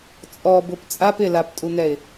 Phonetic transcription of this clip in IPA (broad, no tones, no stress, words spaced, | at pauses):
t͡sʼɔbʊp t͡sʼap ɪlaptʼun̪ɛɪ̯